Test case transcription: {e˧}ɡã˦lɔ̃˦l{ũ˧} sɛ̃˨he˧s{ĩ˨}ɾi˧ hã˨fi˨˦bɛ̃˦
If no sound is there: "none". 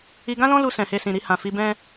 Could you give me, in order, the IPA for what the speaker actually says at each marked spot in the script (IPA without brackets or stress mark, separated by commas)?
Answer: i˧, u˧, ĩ˨